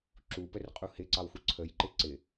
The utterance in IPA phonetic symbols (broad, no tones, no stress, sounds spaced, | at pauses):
ǁ u p ə r qʼ u h ɪ ǀ ɑ w x u ǀʰ ə j ǃ ɪ ǀ ɪ